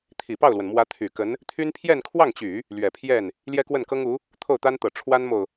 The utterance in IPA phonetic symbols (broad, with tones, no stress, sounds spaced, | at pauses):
t̪ʰ i˨˩ p ɑ˥˩ ʊ̯ l w ə˩ n m w ä˧˥ t̪ʰ y˨˩ k ə˧˥ n | t̪ʰ y˥ n pʰ j ɛ˥˧ n kʰ w ɑ˥˩ ŋ t͡ɕ y˨˩˦ | l ɥ ɛ˨˩ pʰ j ɛ˥˩ n | l j ɛ˥ k w ə˥˩ n k ɤ˥ ŋ u˧˥ | t̪ʰ o˥˩ ʊ̯ t̪ a˥ n t̪ ɤ˨˩ ʈ͡ʂʰ w a˥ n m o˨ ʊ̯